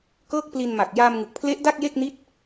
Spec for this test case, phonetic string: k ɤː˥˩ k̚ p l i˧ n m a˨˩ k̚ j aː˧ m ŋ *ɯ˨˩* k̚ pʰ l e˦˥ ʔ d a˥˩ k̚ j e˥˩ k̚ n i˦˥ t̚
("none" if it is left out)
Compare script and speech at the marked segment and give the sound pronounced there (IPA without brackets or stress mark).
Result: ɯ˨˩